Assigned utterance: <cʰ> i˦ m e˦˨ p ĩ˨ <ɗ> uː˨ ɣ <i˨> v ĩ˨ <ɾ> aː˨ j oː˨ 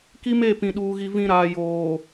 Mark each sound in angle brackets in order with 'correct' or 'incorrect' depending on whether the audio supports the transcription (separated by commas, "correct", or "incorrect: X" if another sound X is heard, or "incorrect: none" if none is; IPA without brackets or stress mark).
incorrect: k, correct, correct, correct